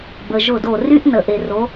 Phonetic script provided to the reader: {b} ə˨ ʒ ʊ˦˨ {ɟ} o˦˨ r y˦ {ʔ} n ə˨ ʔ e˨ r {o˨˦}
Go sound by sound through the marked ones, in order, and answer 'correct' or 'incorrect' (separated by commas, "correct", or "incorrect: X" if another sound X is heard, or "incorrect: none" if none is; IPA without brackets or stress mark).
correct, incorrect: d, correct, correct